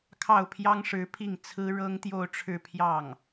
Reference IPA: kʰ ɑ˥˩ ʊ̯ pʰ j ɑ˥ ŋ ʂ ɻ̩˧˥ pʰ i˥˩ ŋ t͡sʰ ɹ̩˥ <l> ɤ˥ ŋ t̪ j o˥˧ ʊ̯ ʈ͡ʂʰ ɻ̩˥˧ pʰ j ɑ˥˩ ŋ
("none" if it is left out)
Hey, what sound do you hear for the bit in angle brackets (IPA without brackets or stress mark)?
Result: ɻ